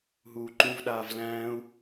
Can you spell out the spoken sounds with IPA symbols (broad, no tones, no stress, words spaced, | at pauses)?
ɦuːǃũvɗaːv læ̃ːu̯